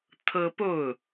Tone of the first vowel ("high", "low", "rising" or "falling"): high